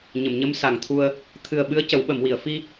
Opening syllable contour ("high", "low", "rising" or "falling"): low